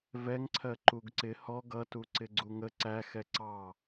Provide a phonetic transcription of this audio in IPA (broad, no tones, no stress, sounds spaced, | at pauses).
v ɛ ŋ ǀʰ ɜ ǃ u ɡ ǀ ɪ h ɔ ɡ ʌ t u ǀ ɪ ɡ͡ǀ u ŋ ə ǀ æ x ɛ ǀ ɑ